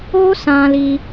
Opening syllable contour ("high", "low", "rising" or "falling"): high